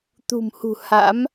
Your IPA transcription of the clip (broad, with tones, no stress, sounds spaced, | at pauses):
t̪ ṳ˨˩ m h ṳ˨˩ h a̰˧˥ m